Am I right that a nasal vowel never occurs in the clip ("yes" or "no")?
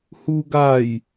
yes